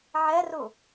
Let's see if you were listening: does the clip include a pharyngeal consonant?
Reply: yes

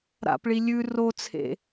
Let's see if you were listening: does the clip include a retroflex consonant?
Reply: yes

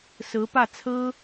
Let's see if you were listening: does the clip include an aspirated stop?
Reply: yes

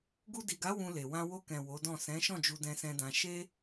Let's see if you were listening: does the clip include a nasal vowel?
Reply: yes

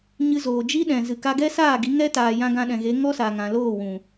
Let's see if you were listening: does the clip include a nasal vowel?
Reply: yes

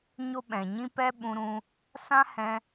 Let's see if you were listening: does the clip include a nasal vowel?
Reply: yes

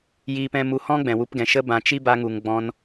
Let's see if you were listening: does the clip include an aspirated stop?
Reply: no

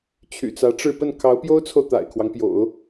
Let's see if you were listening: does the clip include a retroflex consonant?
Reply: yes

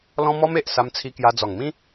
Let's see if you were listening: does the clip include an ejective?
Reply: no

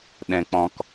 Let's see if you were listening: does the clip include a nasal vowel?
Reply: yes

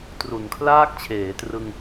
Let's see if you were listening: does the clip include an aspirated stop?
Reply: yes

